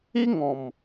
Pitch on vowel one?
high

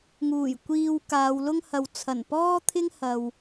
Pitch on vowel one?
low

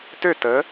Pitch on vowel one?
falling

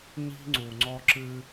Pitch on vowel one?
high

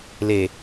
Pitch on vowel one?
low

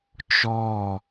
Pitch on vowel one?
falling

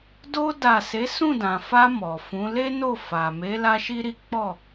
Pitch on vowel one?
high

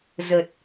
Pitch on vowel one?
low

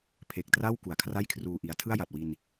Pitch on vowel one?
low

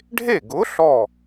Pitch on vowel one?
falling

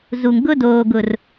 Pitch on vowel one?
low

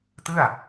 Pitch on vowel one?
falling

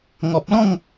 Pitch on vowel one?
low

